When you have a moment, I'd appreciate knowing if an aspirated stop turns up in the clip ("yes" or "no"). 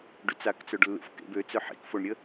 no